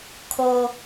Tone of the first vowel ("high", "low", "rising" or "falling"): high